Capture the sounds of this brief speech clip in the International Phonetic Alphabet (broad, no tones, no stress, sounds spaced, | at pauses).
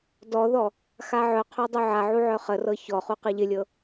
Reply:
d ɔ ð ɔ | x a ʕ œ qʰ œ dˤ u ʕ a ʕ u ʕ œ χ ə r ɤ ç ɔ χ u q ɨ ʎ ɪ lʲ ɤ